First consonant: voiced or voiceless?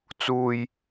voiceless